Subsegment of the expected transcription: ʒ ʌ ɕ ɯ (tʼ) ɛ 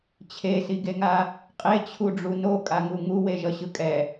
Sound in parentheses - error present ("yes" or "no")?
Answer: yes